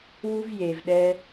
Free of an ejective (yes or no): yes